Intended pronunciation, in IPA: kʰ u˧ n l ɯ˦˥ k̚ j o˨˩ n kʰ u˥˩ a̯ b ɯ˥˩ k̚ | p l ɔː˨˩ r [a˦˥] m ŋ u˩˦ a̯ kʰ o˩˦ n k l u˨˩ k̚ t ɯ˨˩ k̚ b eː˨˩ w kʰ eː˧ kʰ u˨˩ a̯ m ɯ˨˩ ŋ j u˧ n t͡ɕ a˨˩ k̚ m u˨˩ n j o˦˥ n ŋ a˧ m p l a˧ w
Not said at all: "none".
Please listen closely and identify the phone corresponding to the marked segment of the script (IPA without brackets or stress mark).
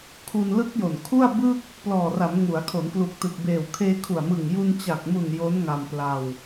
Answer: a˩˦